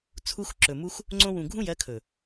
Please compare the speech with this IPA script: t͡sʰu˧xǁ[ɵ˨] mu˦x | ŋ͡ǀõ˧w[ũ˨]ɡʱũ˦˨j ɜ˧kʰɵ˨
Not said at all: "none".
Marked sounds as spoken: ɵ˨, ũ˨

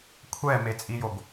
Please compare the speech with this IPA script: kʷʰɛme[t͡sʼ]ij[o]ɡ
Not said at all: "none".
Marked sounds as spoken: t͡sʼ, o

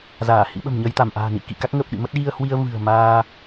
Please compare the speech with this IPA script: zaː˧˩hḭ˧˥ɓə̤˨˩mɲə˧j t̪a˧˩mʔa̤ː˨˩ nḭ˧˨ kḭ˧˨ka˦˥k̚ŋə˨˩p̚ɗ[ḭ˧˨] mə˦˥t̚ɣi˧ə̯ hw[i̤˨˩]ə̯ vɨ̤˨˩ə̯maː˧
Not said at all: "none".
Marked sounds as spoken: ḭ˧˨, i˧

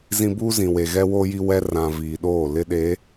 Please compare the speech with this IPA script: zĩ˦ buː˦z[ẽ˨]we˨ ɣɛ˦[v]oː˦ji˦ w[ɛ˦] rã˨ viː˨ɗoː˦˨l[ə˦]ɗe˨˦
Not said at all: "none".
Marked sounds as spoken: ĩ˨, w, ɛ˦, ɪ˦

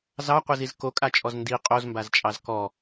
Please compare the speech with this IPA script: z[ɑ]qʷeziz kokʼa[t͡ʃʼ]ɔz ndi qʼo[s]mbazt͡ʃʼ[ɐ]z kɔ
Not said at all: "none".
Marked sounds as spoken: ɑ, t͡ʃʼ, z, ɑ

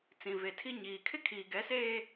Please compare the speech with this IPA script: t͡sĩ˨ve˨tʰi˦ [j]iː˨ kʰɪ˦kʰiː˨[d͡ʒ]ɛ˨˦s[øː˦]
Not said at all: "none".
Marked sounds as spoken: ɲ, ɡ, eː˦

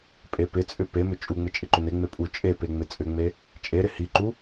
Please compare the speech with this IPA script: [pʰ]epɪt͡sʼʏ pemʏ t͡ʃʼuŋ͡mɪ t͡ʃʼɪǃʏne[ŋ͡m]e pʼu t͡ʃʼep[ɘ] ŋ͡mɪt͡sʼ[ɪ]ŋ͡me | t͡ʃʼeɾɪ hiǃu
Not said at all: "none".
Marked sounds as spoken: pʼ, ŋ͡m, e, ʏ

